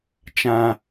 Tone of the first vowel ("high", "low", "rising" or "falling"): high